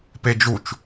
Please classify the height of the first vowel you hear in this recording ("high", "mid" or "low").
mid